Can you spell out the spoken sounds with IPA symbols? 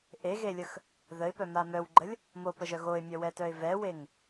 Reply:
ʔeɣelʲəx | ðəɪ̯pœma mœwɡ͡ǃəlʲ | mopəʒœ ɣoɪ̯mʲœwɛtœɪ̯ vɛweŋ

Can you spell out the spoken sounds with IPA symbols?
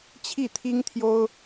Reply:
t͡ɕʰi˥˩t̪ʰi˥ŋt̪ʰjo˥ʊ̯

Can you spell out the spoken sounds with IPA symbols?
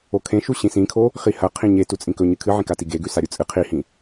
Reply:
okʰẽʃu ɕĩsĩkʰo | χihɐ qʰĩɲe tut͡sʼĩkɵɲɨ kʰɨʕĩkati ɡeɡʉ saɾʲut͡sʼɨ qʰihĩ

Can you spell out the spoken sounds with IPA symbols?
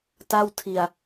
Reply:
ta˥˩w tʰi˧a̯

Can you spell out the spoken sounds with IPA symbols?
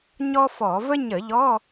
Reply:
ɲɔ˥fɔ˧˩˧ və˥ ɲə˧˩˧ʎɔ˧˥˧

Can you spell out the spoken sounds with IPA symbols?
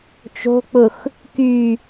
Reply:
t͡ʃo̤k͡pʊx | ky

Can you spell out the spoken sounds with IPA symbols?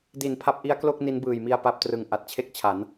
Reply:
di˨˩npʰa˦˥p̚ʔi˦˥a̯klo˥˩k̚ ni˦˥nbɯː˨˩jmi˧a̯ pa˦˥p̚trɯ˨˩ŋ ʔa˨˩t̚t͡ɕʰe˥˩k̚t͡ɕʰa˩˦n

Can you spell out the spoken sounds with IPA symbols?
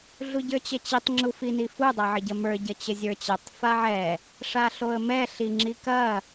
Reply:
ɮuɟə˞t͡ɕət͡ɕitˤ ŋ͡ǁufinifu dˤaʕəɟɐmə˞ ɟɐt͡ɕəzʲə˞t͡ɕɛtˤ faʕɛ | ʂaɬoə̯mɛ ɬiŋ͡ǁikɐ

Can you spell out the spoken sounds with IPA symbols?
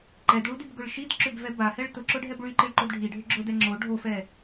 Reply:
ǃɛdɭudibɡʊɭ ʃid ǁʏbvɛ bahɛɭ tʊǁʊɖʱɛb ɭyǃiɭǃod ɖʱiɖʱʏ ɡ͡ǁʊdɛ ŋ͡ǁo ɖʱofɛ

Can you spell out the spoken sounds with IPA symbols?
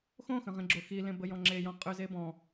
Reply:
xõxə̃ʁĩɡ͡ǁo xilẽbəjɔ̃ ŋ͡ǁejɔ̃ qʼʏze bɔ̃

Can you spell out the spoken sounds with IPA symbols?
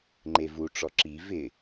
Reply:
ŋ͡ǃevuʈ͡ʂɔ ǁi vɪ

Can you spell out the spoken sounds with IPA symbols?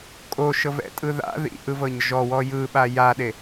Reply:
kʼoʃɤvɛ̰tʼɯ ða̰ ðḭʔɯvɤɲ ʒɔwɔ jɯɓa jaɗe

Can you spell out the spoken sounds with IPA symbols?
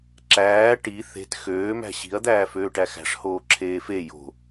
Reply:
ǁæː ʈi θe̤t xøː mæ̤ɕi̤ɐ̯ d̪æːføːʈæxæ̤ʂ hoːǁʰeːfe jo̤

